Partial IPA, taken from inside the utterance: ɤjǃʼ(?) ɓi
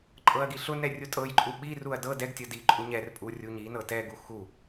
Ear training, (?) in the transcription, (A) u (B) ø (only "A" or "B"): A